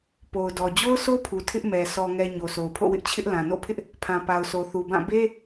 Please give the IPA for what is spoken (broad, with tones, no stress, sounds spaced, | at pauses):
p o˨ ʊ̯ d ɔ˨ d͡ʑ o˦ ʊ̯ s o˦ pʰ u˨ tʰ ɪ˦ ʔ m ɛ˨ sʰ ɔ˨ ŋ ɛ˨ ɲ o˨ sʰ o˨ ʊ̯ pʰ o̰˦˨ w ɪ˦ ʔ t͡ɕʰ ɪ˦ ʔ l ã˨ n o̰˦˨ pʰ ɪ˦ ʔ | pʰ ã˨ p a˨ ʊ̯ s o˨ θ u˨ b ã˦˨ b e˦